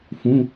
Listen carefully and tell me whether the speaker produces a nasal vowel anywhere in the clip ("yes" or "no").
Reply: yes